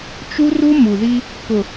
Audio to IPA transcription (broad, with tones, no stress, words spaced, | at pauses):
t͡ʃu˦ru˦ mu˨ði˦ | kʊ˨